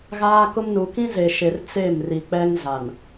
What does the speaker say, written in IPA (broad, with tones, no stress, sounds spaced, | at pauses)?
ɣ aː˦ k ʊ˦ m n u˨ k ĩ˦ z e˨ ʃ e˨ r t͡s e˦˨ m r i˨ k͡p ɛ˦ ŋ z a˨ n